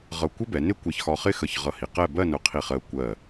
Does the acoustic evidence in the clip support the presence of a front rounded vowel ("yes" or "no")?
no